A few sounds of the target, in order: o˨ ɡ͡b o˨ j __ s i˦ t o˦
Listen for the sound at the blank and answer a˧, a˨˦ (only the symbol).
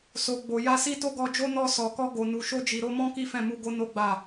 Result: a˧